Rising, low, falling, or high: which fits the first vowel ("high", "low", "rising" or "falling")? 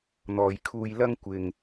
low